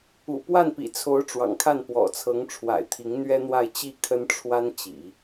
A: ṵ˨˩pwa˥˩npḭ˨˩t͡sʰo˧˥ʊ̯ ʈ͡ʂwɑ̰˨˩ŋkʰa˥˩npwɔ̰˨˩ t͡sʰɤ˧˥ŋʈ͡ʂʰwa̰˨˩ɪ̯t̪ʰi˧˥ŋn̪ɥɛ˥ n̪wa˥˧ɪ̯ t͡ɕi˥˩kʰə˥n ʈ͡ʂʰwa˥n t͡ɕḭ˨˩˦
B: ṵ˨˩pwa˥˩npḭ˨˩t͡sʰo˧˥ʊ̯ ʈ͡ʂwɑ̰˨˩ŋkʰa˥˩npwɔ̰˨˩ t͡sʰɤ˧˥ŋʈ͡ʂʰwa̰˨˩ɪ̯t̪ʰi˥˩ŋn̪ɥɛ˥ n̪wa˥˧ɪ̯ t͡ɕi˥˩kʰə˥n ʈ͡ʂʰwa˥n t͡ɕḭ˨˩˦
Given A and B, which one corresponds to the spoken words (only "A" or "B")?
A